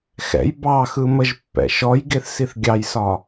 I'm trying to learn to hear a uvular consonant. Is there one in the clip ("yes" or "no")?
no